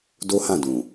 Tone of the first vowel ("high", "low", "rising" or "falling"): high